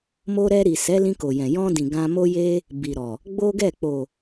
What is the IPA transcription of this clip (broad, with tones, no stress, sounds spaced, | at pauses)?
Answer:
m o˧ ɾ ɛ˧ ɾ i˨ s ɛ˨˦ l ĩ˧ k o˨ j ɛ̃˨ j ɔ̃˧ d ĩ˨ ɡ ã˧ m o˦ j e˦ | b i˨ ɾ ɔ˨ | ɡ͡b o˦ ɡ ɛ˦˨ k͡p o˨